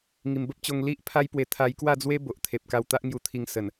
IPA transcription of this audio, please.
ŋ i˨˩ m b ə˦ p̚ t͡ɕ o˧ ŋ l i˦ ʔ pʰ a˦ j p w e˧ t̪ʰ a˧ j k w a˥˧ d͡z w e˦ b o˨ ʔ t̪ʰ e˨ p̚ k a˧ w t̪ a˦ ʔ ŋ j u˧ t̪ʰ i˧ ŋ s ə˨˩ n

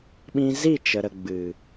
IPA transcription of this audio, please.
ɓ ĩ˧ z i˦˨ t͡ʃ ə˨ ɾ ə˨ ɡ͡b ɨ˨

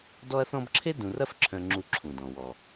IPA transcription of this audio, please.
d ɔ˦ ɐ̯ θ ɔ̃˦ b ǁʰ e˥ d ũ˨ r ɐ˦ f ǁʰ œ̃˨ ŋ͡ǁ u˨ ǁʰ ũ˩ d ɔ̃˩ w ɔ˩

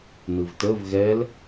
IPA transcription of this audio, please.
n ɯ v t ə v ɣ ɛ l

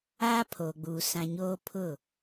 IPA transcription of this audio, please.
aː˦ pʰ oː˨ ɡ͡b uː˨ s ã˨ ɲ oː˦ pʰ ʊ˦˨

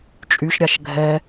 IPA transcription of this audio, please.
t͡ʃʼ y ʃ ɾʲ a ʃ ɡʱ ɛ

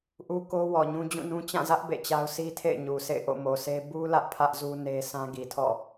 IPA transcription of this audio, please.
ʔ u˦ k o˦ w ɔ˨ ɲ ũ˦ d͡ʑ ũ˦˨ n ũ˦ t͡ɕ ã˦˨ z ä˦ ʔ b ḛ˦˨ t͡ɕ a˦ ʊ̯ sʰ i˦ tʰ ḛ˦˨ ɪ̯ ɲ u˨ sʰ ḛ˦˨ ɪ̯ ʔ o̰˦˨ m o˨ sʰ e˦ b u˦ l ä˦ ʔ pʰ ä˦ ʔ z u˦ n e˦ sʰ ã˦ ɡ i˨ tʰ ɔ̰˦˨

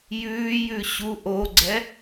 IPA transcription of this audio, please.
j ʉː j ʉ ɕ u ʔ o ɡ͡ǀ ɛ

